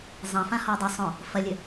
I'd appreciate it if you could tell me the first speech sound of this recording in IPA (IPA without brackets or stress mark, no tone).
zˤ